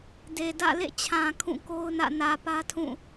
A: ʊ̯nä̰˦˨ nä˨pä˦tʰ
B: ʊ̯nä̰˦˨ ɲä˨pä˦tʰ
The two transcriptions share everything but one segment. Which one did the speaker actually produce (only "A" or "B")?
A